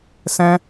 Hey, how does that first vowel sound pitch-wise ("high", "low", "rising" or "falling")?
high